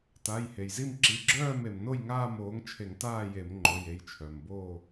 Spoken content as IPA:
t a˩˧˩ j h e˩ j z i˥˨ m ǁ i˩˧˩ ɡ͡ǁ œː˥˨ m e˩ m n o˥˨ j ŋ aː˥˨ m oː˩˥ ŋ t͡ʃʰ e˧˩˧ ŋ t aː˥˨ j e˧˩˧ m ŋ͡ǃ o˩˧˩ j e˩˧˩ j t͡ʃʰ œ˩ m b oː˥˨

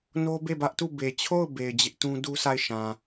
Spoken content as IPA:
n o˦ b e˦˨ b ä˦ ʔ t u˦˨ b e˨ t͡ɕʰ o˦˨ ʊ̯ b e˨ ɪ̯ d͡ʑ ɪ˦ ʔ t ũ˦ d u˦ s a˦˨ ɪ̯ ʃ ã˨

